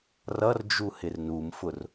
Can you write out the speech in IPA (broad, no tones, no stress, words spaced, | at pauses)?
rʌrd͡ʒu hɪrnumfʊr